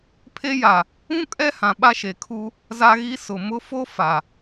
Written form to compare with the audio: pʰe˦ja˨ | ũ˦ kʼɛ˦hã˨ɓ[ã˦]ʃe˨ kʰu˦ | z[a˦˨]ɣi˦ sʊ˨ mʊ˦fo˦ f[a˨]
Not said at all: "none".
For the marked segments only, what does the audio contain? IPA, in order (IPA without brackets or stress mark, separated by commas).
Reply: a˦, a˦, a˨